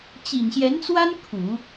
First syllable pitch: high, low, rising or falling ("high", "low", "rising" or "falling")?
low